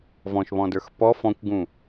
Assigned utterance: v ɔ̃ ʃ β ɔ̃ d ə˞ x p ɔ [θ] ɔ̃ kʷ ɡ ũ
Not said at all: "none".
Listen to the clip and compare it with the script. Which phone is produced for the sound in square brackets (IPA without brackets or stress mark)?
f